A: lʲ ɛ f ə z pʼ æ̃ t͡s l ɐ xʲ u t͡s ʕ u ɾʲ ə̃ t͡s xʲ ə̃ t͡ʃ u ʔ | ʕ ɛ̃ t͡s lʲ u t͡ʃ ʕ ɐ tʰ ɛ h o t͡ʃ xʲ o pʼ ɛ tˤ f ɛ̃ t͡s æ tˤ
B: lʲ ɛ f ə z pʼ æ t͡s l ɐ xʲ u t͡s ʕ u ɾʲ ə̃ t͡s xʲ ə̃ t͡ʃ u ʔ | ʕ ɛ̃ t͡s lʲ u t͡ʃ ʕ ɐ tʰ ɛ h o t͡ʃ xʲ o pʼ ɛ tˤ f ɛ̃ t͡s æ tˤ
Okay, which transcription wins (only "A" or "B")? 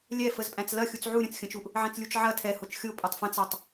A